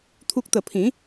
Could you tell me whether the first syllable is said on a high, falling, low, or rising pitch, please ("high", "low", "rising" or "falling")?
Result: high